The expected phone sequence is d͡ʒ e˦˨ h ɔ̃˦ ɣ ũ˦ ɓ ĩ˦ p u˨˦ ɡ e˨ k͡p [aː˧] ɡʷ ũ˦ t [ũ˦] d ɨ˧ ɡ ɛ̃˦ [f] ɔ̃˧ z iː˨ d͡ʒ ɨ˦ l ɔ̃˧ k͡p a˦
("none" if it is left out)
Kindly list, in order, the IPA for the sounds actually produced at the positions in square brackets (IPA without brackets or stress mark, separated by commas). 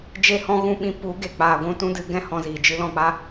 aː˧, ũ˦, h